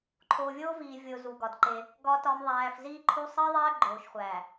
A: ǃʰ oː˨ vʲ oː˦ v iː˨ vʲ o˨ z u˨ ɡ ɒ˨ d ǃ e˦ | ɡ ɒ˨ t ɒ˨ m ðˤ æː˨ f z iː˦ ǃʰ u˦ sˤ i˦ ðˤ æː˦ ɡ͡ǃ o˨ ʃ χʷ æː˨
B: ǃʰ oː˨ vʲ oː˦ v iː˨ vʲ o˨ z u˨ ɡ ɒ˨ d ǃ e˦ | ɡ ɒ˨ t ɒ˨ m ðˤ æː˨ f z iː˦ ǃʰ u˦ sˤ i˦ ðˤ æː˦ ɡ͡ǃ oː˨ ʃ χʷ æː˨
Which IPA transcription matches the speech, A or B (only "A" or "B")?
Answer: B